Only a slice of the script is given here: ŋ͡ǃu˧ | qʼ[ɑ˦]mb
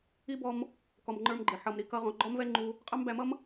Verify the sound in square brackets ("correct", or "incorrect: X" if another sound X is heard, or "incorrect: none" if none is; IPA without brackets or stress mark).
correct